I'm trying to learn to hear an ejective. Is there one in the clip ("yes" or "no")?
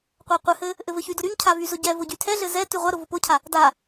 no